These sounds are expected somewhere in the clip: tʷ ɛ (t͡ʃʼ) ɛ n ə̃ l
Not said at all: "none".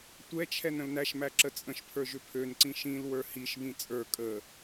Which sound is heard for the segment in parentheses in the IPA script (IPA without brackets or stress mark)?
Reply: t͡ʃʰ